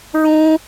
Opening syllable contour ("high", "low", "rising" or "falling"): high